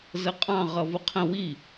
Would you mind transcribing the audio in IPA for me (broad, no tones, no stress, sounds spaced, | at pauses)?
z ə qʼ ɑ̃ ʁ ʌ v ʊ qʰ ə̃ w i